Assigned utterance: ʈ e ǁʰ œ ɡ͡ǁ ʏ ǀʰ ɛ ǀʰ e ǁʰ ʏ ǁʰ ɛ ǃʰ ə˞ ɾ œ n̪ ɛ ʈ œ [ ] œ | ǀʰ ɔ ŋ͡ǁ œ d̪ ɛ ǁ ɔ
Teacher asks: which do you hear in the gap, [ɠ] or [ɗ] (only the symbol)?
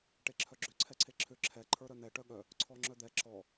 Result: ɠ